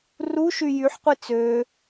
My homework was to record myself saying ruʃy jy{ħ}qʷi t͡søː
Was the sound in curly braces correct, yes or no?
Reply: yes